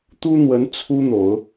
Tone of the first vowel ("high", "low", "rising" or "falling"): high